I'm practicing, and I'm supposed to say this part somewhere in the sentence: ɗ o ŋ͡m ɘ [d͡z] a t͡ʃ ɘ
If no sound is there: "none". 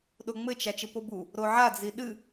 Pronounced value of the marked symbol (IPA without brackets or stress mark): t͡ʃ